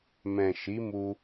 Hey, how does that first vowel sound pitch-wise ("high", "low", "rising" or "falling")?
low